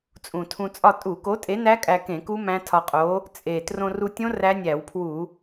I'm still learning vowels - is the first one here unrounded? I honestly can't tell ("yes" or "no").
no